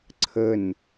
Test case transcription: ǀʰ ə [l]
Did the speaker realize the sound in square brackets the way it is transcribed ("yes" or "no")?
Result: no